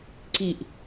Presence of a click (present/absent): present